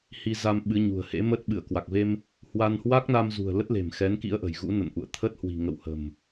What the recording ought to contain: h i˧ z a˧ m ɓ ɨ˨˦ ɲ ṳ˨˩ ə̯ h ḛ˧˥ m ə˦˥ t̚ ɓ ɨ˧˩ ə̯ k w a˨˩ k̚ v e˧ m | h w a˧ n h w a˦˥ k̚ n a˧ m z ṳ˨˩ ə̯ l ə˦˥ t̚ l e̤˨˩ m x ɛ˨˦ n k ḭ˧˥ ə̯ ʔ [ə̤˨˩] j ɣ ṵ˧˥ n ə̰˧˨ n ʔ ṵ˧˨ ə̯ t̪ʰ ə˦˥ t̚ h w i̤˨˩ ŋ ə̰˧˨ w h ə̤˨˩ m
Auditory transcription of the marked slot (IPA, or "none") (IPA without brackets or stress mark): ə̤˨˩